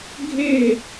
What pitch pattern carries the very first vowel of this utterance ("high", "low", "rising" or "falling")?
falling